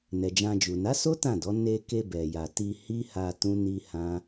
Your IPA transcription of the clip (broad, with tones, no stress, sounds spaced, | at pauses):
n ɛ˨ d͡ʒ ã˧ d͡ʒ u˨ n a˨˦ s o˦ t ã˦˨ d ɔ˨˦ n e˧ k e˧ b ɛ˨ j a˨ t i˧ h i˦ h a˧ t ũ˦ n i˦ h ã˦